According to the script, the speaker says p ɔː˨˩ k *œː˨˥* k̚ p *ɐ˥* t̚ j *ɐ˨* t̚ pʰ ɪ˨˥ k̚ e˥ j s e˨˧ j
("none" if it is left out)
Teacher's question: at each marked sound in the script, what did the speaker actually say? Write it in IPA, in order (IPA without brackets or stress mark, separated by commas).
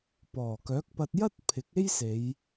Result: œː˨˥, ɐ˧, ɐ˥